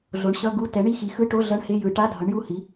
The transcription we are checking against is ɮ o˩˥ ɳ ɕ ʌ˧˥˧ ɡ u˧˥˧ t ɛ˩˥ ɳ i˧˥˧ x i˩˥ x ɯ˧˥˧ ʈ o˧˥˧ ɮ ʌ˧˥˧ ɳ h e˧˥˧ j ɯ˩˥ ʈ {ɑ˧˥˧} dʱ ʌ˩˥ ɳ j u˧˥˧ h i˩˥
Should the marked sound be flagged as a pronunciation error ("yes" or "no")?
yes